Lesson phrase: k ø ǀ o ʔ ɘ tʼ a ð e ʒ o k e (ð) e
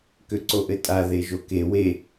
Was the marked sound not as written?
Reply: yes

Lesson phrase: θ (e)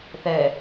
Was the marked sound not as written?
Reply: yes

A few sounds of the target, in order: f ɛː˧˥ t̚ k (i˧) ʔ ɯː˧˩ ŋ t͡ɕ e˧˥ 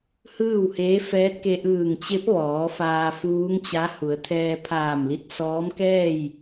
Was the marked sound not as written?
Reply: yes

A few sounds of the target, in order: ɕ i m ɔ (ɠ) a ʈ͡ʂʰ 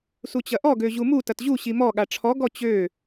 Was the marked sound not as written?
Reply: no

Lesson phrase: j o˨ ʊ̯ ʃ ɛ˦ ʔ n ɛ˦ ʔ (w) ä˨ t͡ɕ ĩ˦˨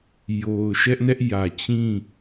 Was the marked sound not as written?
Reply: yes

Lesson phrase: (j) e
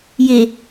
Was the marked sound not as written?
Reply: no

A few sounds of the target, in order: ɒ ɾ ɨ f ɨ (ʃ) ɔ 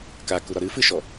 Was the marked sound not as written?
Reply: no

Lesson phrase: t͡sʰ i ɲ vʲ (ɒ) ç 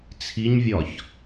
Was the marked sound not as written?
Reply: no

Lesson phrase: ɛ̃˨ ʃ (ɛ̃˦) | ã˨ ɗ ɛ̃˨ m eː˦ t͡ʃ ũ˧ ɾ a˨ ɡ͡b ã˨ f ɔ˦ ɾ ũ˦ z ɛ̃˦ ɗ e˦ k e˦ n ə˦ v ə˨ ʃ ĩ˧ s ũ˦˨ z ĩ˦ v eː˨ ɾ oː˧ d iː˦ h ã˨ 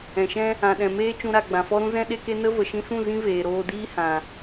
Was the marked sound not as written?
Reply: no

